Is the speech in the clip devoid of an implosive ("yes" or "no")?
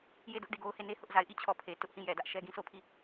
yes